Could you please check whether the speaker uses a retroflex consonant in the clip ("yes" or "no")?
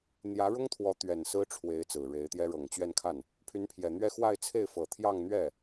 yes